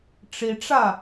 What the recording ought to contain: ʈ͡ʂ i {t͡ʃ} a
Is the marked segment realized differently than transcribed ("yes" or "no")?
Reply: yes